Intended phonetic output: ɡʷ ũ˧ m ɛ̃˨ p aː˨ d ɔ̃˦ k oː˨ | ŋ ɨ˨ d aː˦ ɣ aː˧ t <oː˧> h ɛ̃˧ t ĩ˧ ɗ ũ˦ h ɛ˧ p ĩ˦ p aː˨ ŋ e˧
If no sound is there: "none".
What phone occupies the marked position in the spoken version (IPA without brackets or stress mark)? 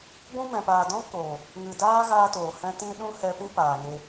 oː˨